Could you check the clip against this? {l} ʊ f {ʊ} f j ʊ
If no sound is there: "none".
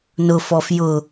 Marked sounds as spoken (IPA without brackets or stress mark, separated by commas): n, ɔ